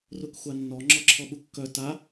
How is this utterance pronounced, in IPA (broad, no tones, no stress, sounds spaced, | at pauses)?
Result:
r u k xʷ a nː ɔ ŋ͡ǁ ɔ ǁʰ ɔ ɓ u kː œ t a